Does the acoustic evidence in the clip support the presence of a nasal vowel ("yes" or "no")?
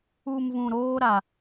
yes